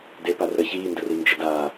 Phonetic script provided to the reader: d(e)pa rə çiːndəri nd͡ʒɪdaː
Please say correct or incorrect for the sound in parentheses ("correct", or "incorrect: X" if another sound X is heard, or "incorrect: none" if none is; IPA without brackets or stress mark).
correct